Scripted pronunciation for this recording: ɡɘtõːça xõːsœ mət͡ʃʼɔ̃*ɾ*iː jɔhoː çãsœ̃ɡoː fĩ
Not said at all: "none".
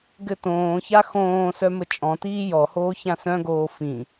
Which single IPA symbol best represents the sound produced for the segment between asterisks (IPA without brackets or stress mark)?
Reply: t